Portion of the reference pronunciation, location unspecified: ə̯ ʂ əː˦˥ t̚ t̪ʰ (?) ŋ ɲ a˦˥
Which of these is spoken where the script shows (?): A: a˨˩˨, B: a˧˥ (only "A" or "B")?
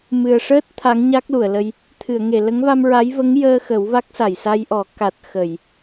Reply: B